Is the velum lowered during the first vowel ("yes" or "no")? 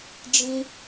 yes